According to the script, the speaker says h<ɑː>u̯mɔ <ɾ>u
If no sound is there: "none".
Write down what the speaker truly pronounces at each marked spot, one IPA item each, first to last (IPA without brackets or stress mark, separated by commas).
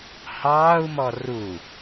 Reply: ɑː, r